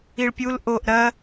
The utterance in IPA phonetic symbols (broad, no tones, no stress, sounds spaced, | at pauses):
i ɭ pʲ u l ʔ o ʔ ɾ ɐ